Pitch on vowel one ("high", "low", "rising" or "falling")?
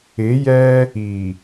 rising